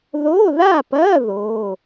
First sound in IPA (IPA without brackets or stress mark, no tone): ð